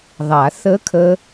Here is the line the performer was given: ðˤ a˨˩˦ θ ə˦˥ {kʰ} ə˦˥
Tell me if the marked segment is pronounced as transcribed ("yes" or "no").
yes